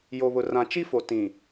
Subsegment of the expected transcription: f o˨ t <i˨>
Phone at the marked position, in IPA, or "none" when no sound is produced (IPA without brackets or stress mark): ĩ˨